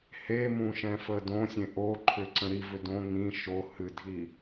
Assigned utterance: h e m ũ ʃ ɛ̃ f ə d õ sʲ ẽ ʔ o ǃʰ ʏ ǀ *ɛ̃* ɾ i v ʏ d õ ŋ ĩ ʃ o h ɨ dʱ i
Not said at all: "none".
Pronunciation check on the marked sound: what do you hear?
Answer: ə̃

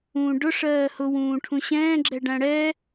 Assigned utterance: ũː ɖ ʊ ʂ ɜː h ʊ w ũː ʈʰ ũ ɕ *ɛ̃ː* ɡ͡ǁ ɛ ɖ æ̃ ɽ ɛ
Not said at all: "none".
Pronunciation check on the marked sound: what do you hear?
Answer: ɛ̃ː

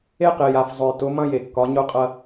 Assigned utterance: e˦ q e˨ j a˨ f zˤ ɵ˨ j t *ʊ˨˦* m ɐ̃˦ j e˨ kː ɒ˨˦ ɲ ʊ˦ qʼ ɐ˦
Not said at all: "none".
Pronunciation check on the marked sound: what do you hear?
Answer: ʊ˨˦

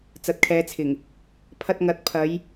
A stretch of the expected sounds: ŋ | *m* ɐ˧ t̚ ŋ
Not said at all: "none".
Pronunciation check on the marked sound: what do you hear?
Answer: pʰ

